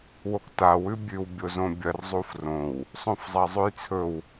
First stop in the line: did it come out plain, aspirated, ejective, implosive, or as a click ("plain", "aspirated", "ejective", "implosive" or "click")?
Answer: plain